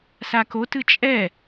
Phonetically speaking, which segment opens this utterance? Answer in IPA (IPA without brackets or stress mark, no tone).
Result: s